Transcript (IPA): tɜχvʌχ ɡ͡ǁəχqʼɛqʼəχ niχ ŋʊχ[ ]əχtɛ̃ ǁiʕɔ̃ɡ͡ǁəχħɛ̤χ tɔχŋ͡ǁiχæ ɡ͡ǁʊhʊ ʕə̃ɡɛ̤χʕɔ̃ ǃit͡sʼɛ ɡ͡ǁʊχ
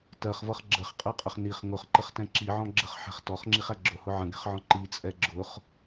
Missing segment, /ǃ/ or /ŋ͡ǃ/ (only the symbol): ǃ